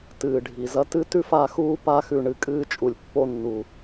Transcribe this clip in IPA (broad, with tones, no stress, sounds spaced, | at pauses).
t ɨː˨ ɖʱ i˨ z ɐ˦ t ɨ˦ t ʉ˦ f a˦˨ x uː˦ p a˦ x ʉ˧ ɳ ɨ˧ kʼ ɨː˧ t͡ʃʼ u˨ lʲ pː o˦˨ nː u˨